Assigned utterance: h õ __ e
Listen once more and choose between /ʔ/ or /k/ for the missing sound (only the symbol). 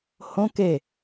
k